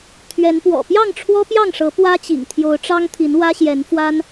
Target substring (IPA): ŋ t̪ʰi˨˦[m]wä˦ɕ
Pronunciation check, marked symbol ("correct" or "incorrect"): incorrect